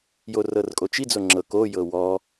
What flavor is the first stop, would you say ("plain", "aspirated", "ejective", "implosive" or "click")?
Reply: ejective